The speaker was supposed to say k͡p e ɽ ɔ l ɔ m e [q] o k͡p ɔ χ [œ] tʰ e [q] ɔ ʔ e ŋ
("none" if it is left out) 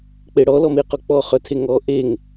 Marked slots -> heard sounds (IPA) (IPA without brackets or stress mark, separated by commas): q, œ, ŋ